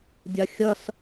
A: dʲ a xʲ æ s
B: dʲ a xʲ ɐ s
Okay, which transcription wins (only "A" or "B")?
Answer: B